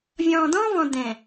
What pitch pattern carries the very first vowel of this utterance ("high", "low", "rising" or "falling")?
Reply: low